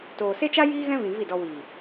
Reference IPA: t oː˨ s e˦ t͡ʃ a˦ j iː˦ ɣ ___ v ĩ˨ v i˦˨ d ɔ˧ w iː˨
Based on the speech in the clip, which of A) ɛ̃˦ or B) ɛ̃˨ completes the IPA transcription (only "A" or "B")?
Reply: A